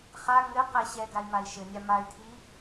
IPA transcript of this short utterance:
χ a ŋ ɘ q ɛ ɕ ɛ ɡ a i̯ m a i̯ ʃ ɘ nʲ a m a y̯ tʰ i

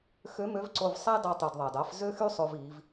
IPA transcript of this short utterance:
x ø˧˥ m ø˧˥ v ǀ o˧ v sˤ æ˥ d ɑ˧ tˤ y˩ d ðˤ ɑ˩ d ɑ˩˧ f z ø˥ x y˥ sˤ o˧ v iː˩˧ v

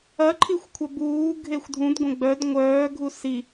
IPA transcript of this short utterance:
ɐ ǃʰ i xʷ kʷʰ ɐ b uː ɡʱ e xʷ dʱ ũ d ɡʷ ə̃ ɡ͡b œ d ŋʷ œː ɡʱ u s i

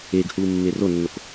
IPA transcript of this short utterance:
eː ɡ h uː mː eː r o nː o k

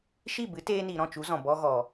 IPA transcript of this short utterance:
ʃ i˦˨ b ɨ˨˦ t eː˧ n i˨ ɾ ɔ̃˦˨ t͡ʃ u˨˦ z ɔ̃˨ b ɔ˧ ɣ ɔ˨

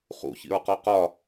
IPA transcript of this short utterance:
χ ṵ ç ḭ ɹ q ɔ q ɒ

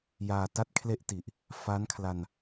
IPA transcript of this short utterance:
j aː˧ t a˥˩ t̚ kʰ l e˥˩ ʔ t i˨˩ ʔ | f a˦˥ n kʰ l a˧ n

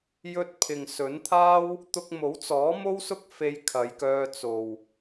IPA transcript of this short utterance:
j ɵ˧ t̚ pʰ ɪ˨ ŋ s ɵ˨˥ n t̪ʰ aː˥ w | t̪ ʊ˧ k̚ m o˨˥ w t͡s ɔː˨˥ m o˥ w s ʊ˥ k̚ f e˧ j kʰ ɐ˨˧ j k œː˧ t͡s o˨ w

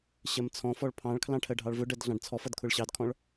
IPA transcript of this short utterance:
ɕ ɜ m t͡sʰ ɔ̃ f ɔ ɭ pʰ ɑ̃ ɭ kʰ l ɑ̃ ʈʰ ɜ ɖʱ ɑ ɭ v ʊ ɖ ɜ d ɮ ɑ̃ ɖ t͡sʰ ɔ f ʌ d kʰ ʊ ɭ ɕ ɑ d kʰ ɔ̃ ɭ

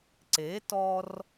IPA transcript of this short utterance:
ǀ e˩˥ t ɔ˧ r

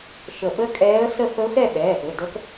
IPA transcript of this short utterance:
ʃ ə˧˩ ɓ ə˦˥ kʼ ɛː˦˥ ə̯ s ə˥˧ f ə˦˥ ʊ̯ x ɛ˥˧ ɓ ɛː˩˧˩ p ɘ˩˧˩ d ə˦˥ k

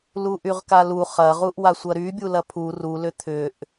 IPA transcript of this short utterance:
l u ʔ y ʁ k a l u χ ɐ ʁ u ʔ w a sʷ ɐ ɾ y bʲ u l ɐ pʰ u r u l ʏ t̪ʰ ʏ ʔ

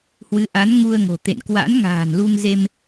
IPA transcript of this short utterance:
h w ɨ˨˦ ʔ a˨˦ n ŋ u˧ ə̯ ŋ o̤˨˩ t̪ ḛ˧˨ n k w a̰˧˥ n ŋ a̤ː˨˩ n l u˧ ŋ z e˧ m

